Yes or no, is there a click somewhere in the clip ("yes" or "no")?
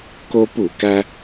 no